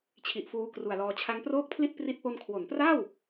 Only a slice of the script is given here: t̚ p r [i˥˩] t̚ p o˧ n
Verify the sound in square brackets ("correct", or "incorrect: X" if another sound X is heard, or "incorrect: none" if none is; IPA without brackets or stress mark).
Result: incorrect: i˦˥